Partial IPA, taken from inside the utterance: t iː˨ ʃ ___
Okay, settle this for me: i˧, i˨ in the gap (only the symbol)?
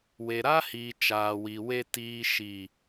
i˨